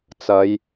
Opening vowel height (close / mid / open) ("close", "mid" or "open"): open